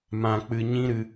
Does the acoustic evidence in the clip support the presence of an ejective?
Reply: no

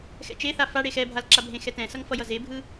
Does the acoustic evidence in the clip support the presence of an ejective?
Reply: no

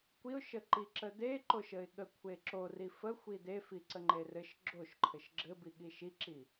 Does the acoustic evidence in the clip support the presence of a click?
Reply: yes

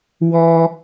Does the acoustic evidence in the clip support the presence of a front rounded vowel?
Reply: no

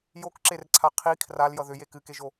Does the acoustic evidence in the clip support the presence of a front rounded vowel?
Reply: yes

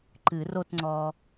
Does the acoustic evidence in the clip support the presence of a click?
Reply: yes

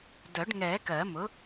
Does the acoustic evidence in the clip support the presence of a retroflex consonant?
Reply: yes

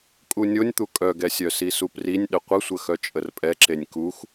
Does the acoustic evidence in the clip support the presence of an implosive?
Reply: yes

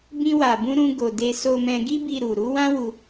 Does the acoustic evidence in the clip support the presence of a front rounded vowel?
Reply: no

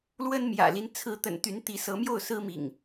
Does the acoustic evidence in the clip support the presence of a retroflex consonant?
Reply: no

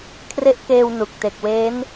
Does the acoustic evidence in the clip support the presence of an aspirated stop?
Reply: yes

